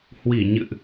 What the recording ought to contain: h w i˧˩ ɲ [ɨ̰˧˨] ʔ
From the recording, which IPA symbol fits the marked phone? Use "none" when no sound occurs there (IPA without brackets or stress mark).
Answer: ɨ̰˧˨